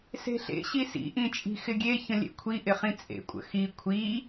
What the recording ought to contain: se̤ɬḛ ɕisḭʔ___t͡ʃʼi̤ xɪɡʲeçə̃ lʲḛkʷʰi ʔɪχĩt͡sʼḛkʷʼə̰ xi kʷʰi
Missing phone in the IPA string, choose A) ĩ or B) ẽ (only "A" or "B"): A